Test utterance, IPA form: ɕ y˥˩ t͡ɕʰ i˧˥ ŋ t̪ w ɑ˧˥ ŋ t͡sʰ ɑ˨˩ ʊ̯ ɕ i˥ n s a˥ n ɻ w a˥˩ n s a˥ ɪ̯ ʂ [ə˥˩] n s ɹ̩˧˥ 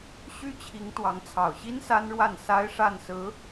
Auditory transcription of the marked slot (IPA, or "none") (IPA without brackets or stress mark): a˥˩